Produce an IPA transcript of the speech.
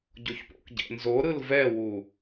ɟ o ç p o̰ k ɟ ɛ̰ n z o ɾ ɯ l v ɛ w u

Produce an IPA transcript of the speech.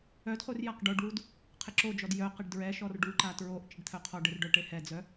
œ d χ u r j a q ɖ o ɖ w u d | qʰ ɪ ǁ o d͡ʒ ɔ d j œ q ɪ ɖ d ɹ ɛ ʃ ɔ r ɖ u ǃ a t ɹ o ʔ t͡ʃ ɪ ɖ t̪ʰ œ qʰ ɔ ɖ ɪ r ɖ œ ʈ e h ɛ d͡z œ

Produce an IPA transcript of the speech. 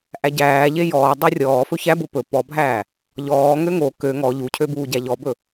ʔ æ ɟ æː ʎ e j ɔː dˤ u rʲ ɔː f ɵ ç æ b o p ɵ p ɔ bʱ æː | ʎ ɔː ŋ ø ŋ o k ø ŋ ɔ ʎ u cʰ ø b uː ɟ æ ʎ ɔ b ɵ

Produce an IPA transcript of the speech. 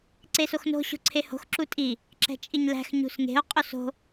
ǀ e s o x n o̤ ɕ o̤ ǀʰ e h o̤ x ǁ u tʼ i | ǁ ɛ̤ t͡ʃʼ i ɲ l æ̤ x ɲ ṳ s ŋ e̤ o̯ qʼ o s o̤

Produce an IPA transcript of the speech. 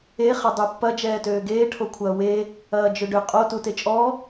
e χ ɐ dˤ u pː ɐ d͡ʒ ɛː t øː ɡ eː ʈʰ o kʷʰ ɐː w e | ɐː d͡ʒ ø ɖ ʏ qʼ o t u t e t͡ʃʼ ɔ

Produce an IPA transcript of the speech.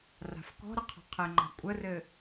r a̤ f k ɔ̤ ɾ ə qʰ ɔ̤ qʰ ɘ ŋ͡ǃ a̤ kʷʼ ə r ɘ

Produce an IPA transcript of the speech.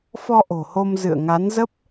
f ɔ˧ ʔ o̤˨˩ h o˧ m z ɨ̰˧˨ ə̯ ŋ a˨˦ n z ə˦˥ p̚

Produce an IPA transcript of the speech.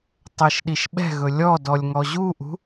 tˤ ɛ ʃ ɗ i ʃ ɓ ɛ̤ ɣ ɵ lʲ ɔ d ɔ lʲ ŋ ɔ ʑ u ʔ ṳ

